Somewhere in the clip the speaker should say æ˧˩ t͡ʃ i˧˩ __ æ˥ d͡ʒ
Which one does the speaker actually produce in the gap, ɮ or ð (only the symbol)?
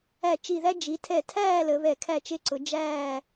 ð